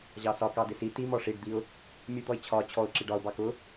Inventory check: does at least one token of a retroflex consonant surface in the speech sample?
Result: yes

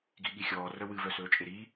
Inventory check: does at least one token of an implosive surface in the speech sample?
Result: yes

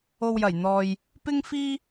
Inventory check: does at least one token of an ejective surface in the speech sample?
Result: no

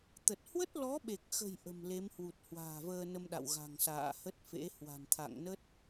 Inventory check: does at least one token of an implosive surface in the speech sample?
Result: yes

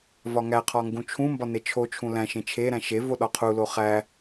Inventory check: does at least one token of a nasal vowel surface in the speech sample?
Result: yes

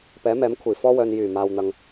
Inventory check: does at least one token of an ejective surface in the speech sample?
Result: no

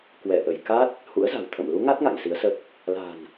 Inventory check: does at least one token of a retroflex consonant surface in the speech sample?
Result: no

